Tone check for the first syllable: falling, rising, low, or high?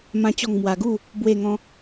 high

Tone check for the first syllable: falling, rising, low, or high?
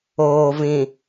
low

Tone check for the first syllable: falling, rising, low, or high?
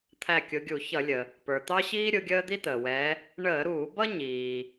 falling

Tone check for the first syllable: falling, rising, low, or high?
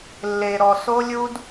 low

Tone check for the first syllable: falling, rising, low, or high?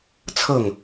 falling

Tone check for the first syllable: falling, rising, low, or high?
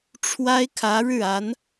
high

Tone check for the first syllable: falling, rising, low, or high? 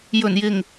low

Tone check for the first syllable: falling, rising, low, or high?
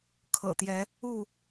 low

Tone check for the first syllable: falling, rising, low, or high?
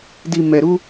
low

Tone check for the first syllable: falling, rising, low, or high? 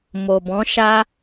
low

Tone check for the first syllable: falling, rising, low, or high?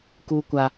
high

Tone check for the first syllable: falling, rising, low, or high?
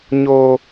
low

